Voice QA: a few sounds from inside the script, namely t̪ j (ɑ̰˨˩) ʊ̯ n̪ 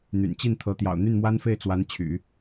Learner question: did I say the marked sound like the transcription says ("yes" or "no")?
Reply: yes